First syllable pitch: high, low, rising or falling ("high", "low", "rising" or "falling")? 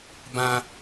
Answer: high